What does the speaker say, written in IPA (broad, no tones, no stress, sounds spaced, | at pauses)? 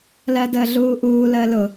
l ɜ d əː ɮ uː ʔ uː l əː l ʊ